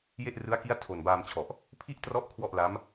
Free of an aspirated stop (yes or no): no